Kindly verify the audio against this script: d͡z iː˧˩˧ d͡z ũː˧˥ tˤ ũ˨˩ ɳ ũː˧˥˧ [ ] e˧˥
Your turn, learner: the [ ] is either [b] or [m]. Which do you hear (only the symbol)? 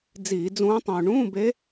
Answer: b